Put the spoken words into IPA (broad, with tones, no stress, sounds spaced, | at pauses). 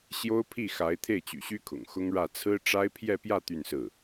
ɕ j o˥ ʊ̯ pʰ i˥˩ x a˧˥ ɪ̯ t̪ʰ e˥˩ ɪ̯ t͡ɕ y̰˨˩ ɕ y˥ kʰ ʊ̰˨˩ ŋ x ʊ˥ ŋ ɻ ä˥˩ t͡sʰ ɹ̩˥ ʈ͡ʂ a˥ ɪ̯ pʰ j ɛ˥˧ p j ä˥˧ t̪ y˥˧ n s ɹ̩˥˩